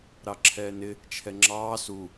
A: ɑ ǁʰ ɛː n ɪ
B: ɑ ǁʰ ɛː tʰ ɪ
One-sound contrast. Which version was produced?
A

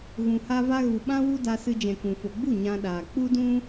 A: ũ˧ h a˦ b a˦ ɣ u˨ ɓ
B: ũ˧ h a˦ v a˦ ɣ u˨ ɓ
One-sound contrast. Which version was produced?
B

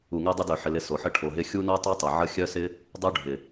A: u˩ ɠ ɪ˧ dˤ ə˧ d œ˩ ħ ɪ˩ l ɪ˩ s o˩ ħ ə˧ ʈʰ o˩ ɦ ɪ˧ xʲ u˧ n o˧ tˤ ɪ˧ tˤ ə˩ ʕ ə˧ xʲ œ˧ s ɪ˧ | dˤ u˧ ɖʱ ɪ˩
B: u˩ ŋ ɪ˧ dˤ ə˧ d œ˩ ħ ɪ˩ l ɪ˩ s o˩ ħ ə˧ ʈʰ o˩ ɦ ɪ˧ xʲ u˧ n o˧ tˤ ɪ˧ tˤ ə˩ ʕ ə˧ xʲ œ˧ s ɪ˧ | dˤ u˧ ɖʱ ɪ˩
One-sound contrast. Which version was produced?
B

